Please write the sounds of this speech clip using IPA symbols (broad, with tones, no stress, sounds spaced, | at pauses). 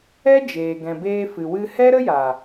ɛ˦ d͡ʒ eː˨ ɡ ɛ̃˨ b eː˧ f ɨ˨ w ɨ˧ h ɛ˦ ɾ ə˦ j a˨